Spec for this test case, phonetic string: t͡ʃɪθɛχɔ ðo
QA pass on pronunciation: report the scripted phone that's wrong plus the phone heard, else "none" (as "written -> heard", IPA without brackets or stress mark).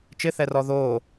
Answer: χ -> r